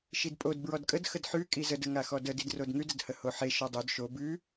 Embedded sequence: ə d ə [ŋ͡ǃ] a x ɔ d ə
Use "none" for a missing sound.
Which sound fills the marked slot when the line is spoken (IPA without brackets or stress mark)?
ŋ